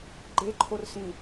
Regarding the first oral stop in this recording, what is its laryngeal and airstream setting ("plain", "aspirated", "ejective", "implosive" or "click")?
click